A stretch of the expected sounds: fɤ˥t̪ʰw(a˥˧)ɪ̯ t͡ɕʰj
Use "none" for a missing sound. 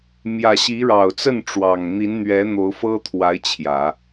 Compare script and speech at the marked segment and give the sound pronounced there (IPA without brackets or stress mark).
a˧˥